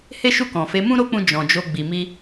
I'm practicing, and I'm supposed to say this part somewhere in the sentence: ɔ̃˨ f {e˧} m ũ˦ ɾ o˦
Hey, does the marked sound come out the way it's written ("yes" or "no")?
no